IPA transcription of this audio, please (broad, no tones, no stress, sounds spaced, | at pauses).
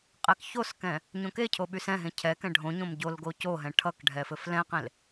qʼ ɛ k ç o s k ɛ̃ | ɲ õ k e cʰ o ɓ y s ɛ̃ ɦ ẽ cʰ ɛ k ɛ̃ ɖʱ õ ɲ õ m ɟ o l ɡ o c o ɦ ɛ̃ ʈʰ ʌ k ɖʱ ɛ f ɘ f l ɛ̃ q ẽ l